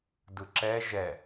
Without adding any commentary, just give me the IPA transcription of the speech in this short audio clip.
d ɯ ǁ ɛ ʒ ɛ

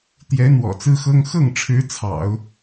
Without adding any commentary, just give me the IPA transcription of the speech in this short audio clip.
t̪ j ɛ˧˥ n̪ w ɔ̰˨˩ t͡s ɹ̩˥ x ɤ˥ ŋ x ɤ˥˩ ŋ ʈ͡ʂʰ ɻ̩˧˥ t͡sʰ ɑ̰˨˩˦ ʊ̯

